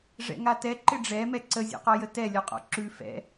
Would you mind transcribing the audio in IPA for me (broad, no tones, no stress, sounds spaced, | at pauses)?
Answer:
ʐ ɛ̰ ŋ a t ɛ ǃ ɪ ɖ͡ʐ ɛ m ɛ ǀ ə zʲ ɔ̰ q ɔ j ə t ɛ lʲ ɔ qʼ ɔ̰ ǁ ʉ f ɛ̰